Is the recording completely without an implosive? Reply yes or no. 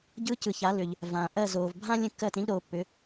yes